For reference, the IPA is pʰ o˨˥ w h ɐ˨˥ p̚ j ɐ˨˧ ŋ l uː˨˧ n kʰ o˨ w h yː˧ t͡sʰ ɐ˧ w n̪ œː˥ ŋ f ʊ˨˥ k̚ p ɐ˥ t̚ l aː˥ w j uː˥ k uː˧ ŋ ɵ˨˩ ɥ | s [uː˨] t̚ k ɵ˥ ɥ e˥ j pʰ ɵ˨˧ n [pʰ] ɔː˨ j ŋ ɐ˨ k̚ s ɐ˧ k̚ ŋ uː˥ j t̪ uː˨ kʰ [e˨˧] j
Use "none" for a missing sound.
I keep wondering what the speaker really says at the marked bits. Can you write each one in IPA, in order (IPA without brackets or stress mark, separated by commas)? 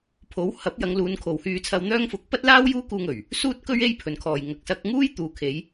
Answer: uː˥, kʰ, e˨˧